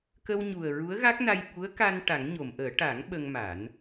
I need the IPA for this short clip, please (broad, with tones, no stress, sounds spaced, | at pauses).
k ə˧ w ɲ u˨˩ ə̯ ɹ u˧˥ ə̯ ɣ a˦˥ k̚ n a˧ j ɓ u˧˥ ə̯ k a˧ n ʈ a˨˩˦ ŋ ɲ o˨˩˨ m ʔ əː˨˩˦ ʈ a˨˩˦ ŋ ɓ ə˧ ŋ m a˨˩˦ n